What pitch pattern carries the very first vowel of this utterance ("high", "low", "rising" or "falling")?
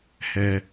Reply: low